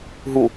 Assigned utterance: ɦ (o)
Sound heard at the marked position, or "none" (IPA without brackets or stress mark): u